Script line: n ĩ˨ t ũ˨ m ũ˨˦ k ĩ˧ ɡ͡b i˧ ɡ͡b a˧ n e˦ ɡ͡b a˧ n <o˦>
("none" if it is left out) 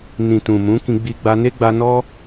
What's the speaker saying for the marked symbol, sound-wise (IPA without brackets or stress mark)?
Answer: ɔ˦